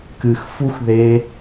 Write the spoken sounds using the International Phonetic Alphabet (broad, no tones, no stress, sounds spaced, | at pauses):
k ɨ x f u x ð e